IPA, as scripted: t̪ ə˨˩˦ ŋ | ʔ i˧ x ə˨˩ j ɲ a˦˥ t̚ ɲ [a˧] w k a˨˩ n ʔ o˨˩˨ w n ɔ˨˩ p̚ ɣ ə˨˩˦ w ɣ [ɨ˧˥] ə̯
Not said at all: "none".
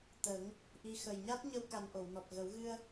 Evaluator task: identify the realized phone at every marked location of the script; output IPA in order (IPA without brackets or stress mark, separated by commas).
ə˧, ɨ˧